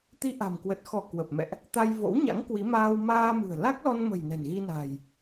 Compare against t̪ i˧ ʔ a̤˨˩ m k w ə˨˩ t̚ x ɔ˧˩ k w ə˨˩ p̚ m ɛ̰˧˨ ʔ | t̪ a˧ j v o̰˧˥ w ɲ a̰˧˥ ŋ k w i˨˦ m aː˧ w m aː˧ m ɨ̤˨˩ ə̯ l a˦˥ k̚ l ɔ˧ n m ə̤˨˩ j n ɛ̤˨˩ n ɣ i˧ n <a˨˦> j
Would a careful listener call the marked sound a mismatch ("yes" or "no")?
yes